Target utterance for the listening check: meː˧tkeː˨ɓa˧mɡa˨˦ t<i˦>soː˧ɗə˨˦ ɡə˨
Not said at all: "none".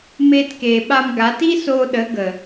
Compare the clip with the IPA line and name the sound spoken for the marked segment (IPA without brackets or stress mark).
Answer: i˦